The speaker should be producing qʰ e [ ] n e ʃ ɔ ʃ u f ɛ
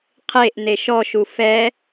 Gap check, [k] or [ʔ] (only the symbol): ʔ